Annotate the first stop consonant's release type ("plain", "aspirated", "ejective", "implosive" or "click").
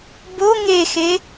plain